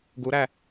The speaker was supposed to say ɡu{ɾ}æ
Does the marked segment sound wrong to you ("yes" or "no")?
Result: no